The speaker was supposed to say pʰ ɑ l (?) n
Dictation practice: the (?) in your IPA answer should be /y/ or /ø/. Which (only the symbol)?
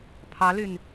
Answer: y